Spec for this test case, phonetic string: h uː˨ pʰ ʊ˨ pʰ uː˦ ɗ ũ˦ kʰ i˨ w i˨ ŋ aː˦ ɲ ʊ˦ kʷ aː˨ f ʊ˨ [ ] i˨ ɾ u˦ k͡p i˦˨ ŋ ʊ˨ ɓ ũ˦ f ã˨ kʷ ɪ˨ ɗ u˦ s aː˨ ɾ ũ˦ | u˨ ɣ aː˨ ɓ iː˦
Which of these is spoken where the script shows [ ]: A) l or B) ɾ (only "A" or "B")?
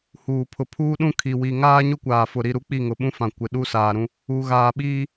B